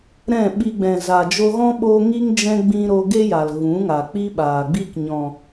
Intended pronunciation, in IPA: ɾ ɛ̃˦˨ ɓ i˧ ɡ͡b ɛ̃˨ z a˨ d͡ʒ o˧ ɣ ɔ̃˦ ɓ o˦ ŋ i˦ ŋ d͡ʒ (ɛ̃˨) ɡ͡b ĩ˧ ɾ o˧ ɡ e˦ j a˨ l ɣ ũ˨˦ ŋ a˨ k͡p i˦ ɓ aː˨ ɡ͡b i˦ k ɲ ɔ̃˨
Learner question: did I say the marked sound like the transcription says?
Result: no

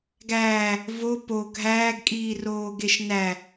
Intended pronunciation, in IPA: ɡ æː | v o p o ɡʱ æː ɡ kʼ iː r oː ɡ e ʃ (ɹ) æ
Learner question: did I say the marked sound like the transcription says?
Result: no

